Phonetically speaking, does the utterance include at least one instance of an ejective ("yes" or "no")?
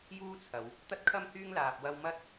no